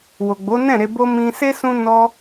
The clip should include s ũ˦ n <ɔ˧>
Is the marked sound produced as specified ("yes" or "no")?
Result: yes